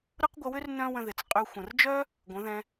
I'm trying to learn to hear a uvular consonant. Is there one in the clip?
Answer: yes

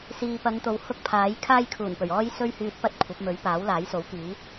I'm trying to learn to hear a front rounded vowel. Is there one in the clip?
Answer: yes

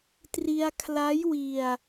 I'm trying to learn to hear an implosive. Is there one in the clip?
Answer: no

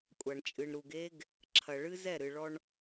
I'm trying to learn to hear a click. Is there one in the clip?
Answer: yes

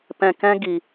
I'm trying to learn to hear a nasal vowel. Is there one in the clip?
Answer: yes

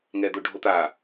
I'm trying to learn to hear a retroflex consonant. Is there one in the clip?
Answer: yes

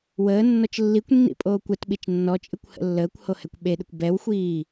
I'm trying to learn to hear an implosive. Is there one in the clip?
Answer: yes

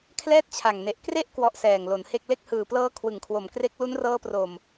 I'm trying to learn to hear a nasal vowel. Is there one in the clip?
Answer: no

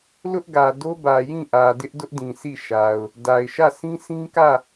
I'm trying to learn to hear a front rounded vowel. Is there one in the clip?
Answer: no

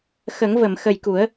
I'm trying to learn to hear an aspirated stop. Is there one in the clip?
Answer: no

